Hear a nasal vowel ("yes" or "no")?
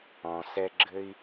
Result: yes